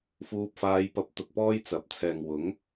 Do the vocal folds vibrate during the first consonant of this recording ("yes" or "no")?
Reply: no